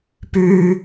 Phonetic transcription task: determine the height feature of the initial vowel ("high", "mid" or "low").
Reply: high